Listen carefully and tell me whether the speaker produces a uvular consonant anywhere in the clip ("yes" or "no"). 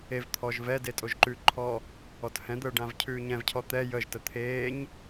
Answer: no